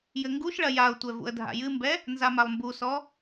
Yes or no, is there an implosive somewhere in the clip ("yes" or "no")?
no